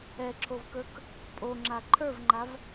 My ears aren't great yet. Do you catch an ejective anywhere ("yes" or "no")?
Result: yes